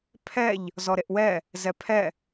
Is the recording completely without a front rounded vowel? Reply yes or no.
yes